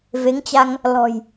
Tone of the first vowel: rising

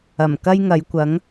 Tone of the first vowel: low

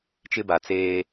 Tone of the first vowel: high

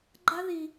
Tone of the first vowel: high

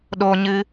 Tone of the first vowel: high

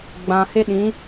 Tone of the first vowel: low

